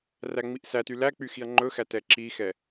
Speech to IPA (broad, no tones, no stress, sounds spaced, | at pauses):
r æ ŋ͡m i ʔ s æ t y l æ k͡p y x i ɐ̯ ŋ͡ǃ ɵ x æ t ɛ ǁ i x ɛ